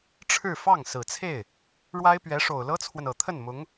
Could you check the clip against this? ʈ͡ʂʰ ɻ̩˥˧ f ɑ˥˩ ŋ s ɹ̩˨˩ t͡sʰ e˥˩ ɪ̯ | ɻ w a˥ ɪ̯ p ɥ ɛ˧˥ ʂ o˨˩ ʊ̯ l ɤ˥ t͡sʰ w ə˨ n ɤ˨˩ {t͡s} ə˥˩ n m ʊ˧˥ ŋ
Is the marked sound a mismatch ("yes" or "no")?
yes